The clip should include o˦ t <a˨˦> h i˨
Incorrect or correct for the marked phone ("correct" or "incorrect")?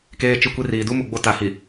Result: correct